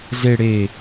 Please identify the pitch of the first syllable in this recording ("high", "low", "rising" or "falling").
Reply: low